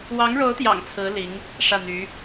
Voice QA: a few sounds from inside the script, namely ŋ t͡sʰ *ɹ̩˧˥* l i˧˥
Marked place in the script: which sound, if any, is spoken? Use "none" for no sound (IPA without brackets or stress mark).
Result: ɹ̩˧˥